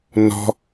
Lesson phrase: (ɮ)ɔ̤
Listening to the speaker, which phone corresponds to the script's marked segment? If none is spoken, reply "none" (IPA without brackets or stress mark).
n